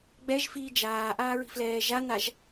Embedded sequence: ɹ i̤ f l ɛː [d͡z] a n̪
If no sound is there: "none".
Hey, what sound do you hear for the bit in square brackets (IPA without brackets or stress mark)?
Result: ʒ